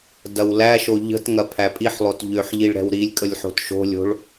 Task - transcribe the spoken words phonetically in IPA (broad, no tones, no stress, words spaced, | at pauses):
dɐwlæʃo ʎə̤tŋɐ pʰæpʼiħlˠot ʎøħ ʎiɭɾɛ̤wɾilʲkʼəlʲ ħo̤tʃo̤lʲo̤ɭ